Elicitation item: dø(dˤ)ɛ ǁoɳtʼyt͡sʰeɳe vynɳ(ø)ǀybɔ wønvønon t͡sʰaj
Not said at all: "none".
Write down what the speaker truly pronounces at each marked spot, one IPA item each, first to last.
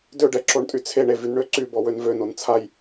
ɖ, ø

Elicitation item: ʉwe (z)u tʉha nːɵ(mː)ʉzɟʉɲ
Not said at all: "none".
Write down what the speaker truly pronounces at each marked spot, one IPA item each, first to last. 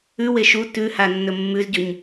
ʃ, mː

